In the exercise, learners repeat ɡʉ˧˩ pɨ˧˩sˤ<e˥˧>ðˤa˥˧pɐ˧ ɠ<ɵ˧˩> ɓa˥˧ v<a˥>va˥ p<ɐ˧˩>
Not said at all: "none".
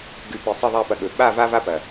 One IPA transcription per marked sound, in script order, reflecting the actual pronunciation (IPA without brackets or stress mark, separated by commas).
e˥˧, ɵ˧˩, a˥, ɐ˧˩